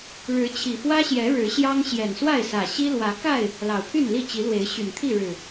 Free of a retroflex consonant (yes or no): no